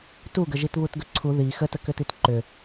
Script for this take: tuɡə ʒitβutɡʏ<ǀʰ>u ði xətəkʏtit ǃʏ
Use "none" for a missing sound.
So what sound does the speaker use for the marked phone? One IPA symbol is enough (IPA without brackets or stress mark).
ǀʰ